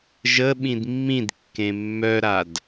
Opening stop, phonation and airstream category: implosive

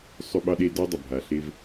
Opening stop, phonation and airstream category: implosive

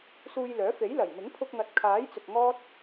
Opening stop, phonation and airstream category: aspirated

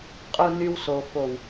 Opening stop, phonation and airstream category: ejective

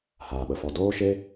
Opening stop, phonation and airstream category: implosive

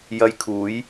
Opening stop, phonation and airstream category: aspirated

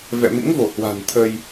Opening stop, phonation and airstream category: aspirated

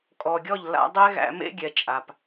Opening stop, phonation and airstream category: ejective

